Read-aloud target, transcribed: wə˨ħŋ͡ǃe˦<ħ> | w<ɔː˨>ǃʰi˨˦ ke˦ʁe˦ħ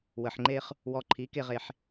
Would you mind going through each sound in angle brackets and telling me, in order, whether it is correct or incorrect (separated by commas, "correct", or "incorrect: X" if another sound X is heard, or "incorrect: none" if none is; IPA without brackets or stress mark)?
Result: incorrect: χ, incorrect: ɔ˨